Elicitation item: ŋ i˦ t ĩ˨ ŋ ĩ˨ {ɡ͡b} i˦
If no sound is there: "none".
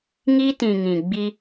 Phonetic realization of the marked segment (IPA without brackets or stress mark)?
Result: ɡ͡b